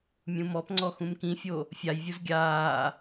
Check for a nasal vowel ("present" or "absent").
present